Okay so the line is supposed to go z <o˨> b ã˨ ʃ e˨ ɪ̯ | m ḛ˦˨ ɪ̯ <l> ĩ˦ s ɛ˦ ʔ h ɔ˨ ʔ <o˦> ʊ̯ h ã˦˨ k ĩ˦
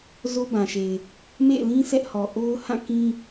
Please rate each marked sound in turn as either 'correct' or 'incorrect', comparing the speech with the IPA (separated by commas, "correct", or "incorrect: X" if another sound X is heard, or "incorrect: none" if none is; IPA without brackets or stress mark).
incorrect: o˦, correct, correct